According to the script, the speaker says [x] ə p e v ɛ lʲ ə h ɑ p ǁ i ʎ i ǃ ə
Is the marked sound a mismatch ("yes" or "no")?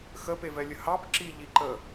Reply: no